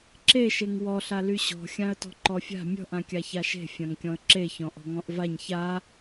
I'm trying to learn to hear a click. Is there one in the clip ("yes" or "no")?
yes